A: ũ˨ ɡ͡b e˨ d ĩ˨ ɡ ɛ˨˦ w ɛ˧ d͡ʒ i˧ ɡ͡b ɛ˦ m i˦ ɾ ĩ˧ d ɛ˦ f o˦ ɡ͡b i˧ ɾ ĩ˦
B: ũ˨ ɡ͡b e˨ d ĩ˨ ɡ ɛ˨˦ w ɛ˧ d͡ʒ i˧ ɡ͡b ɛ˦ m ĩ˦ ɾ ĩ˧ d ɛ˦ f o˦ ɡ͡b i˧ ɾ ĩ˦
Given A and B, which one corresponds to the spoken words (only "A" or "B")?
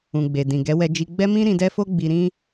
B